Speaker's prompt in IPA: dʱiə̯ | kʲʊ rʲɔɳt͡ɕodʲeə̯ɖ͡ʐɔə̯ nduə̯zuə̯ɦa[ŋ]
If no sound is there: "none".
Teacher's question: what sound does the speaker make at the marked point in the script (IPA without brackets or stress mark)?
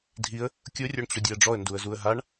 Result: ɳ